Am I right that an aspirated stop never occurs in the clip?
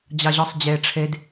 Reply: no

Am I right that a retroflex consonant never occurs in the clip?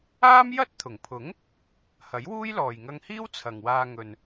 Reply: yes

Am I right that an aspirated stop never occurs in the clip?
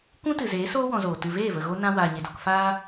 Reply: yes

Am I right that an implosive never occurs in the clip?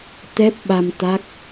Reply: no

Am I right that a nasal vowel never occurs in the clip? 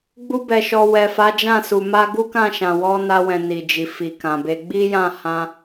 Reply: no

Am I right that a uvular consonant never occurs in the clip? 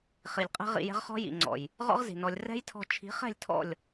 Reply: no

